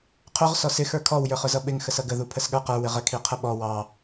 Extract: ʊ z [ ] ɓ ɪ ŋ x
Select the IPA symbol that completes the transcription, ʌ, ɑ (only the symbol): ʌ